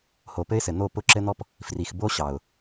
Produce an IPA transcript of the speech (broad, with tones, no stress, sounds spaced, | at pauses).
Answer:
h o˨ p ɘ˦ ɪ̯ s ɘ˨ n̪ o˦˨ p ʊ˦ ǁ ɘ˦ n̪ ɔ˦ p | f r i˨ x b o˦ ɕ ɑ˨ ʊ̯